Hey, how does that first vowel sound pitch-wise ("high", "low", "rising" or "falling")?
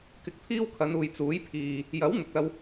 rising